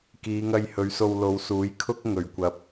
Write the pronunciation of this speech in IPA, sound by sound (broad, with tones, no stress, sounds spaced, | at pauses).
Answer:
k iː˨˧ ŋ ɐ˧ j h ɵ˨˧ ɥ s o˧ w l o˨˧ w s uː˨˥ j kʰ ʊ˥ k̚ ŋ ɵ˨ ɥ kʷ ɐ˨ p̚